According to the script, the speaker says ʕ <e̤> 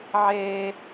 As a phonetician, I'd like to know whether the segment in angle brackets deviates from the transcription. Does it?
yes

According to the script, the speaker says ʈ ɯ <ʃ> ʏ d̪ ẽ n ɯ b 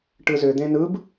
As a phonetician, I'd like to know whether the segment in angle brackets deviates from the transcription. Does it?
yes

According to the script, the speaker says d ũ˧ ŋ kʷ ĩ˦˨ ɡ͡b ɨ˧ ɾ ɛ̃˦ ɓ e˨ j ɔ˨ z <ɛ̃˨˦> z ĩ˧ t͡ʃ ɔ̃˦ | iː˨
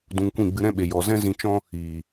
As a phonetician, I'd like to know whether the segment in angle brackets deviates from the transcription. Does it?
yes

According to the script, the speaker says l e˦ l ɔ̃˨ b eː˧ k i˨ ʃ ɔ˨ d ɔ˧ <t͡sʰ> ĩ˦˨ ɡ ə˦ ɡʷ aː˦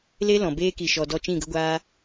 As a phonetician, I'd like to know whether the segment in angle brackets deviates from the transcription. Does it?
yes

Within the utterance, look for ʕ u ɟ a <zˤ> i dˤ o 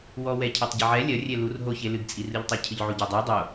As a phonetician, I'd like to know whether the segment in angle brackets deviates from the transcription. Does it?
yes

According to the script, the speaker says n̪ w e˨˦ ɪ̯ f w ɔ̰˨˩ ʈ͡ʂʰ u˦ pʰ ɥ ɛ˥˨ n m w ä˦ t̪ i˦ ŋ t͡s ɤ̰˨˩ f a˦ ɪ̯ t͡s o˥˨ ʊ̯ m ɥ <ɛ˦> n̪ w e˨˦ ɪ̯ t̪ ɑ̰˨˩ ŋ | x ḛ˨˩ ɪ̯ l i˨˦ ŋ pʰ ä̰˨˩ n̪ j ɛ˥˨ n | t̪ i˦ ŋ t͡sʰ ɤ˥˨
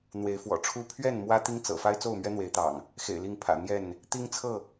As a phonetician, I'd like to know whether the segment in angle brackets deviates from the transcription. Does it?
no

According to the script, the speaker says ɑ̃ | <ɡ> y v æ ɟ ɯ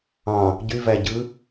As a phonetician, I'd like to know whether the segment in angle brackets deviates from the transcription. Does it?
yes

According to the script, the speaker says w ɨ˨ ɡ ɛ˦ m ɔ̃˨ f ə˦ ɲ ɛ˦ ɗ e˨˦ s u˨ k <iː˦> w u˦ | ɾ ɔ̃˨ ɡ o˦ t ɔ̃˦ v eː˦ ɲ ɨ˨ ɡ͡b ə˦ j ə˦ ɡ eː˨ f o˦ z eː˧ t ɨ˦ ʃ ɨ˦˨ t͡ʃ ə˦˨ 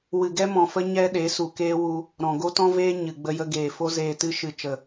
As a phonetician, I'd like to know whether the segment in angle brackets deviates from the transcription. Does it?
yes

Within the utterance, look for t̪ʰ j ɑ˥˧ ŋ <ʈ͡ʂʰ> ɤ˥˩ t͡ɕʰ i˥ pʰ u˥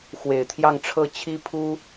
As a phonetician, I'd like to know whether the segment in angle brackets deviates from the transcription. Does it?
no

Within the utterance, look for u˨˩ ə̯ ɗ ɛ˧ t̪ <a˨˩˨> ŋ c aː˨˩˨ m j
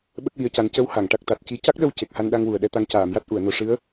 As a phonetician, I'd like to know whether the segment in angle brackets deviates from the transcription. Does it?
yes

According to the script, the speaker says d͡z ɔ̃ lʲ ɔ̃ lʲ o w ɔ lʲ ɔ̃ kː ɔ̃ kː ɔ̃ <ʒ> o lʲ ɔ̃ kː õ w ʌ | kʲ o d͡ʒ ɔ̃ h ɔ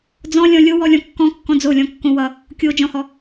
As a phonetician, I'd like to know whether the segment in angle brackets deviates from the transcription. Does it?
yes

